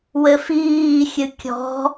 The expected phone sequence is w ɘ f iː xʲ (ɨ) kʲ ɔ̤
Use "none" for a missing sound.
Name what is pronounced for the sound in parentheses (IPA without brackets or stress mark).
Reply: ɨ